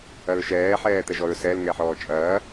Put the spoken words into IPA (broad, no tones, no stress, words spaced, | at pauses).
ɐɹʃɛː ħɛːt̪ɛʒɔɹsɛl ŋɛħɔːt͡ʃʼɐː